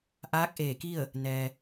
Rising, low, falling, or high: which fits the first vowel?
rising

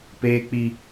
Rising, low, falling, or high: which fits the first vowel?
high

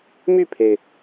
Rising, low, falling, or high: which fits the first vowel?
falling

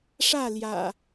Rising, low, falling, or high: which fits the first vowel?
falling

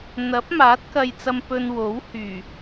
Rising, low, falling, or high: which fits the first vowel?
rising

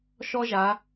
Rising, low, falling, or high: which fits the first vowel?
high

